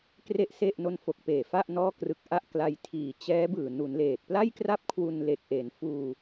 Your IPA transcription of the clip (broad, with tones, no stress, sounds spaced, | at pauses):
k r e˥˩ ʔ s e˥˩ ʔ n o˧ n f o˨˩ k̚ p eː˨˩ f a˥˩ ʔ n ɔː˥˩ k r ɯ˦˥ k̚ ʔ a˥˩ ʔ k l a˧ j tʰ iː˨˩ t͡ɕ ɛː˦˥ b ɯː˨˩ n u˩˦ n l eː˨˩ t̚ p l a˥˩ j k r a˥˩ p̚ kʰ w u˧ n l e˨˩ k̚ ʔ eː˩˦ n f uː˧